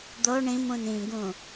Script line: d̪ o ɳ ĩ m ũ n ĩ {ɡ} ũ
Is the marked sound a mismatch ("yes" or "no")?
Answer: no